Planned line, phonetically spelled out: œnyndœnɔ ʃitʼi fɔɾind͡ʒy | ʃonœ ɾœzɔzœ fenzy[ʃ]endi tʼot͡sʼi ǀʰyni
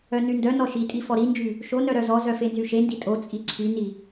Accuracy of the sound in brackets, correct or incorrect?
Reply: correct